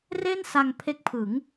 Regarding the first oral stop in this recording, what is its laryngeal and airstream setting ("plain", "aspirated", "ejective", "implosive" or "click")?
aspirated